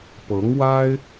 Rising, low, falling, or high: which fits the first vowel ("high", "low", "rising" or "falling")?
rising